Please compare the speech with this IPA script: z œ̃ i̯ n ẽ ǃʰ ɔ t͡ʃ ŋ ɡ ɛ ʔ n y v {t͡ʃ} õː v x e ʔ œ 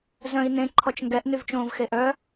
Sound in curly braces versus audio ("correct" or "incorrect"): correct